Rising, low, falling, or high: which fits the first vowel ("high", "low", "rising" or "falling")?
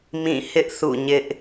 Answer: falling